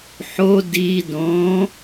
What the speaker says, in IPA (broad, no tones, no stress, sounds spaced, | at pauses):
ħ o d i d õ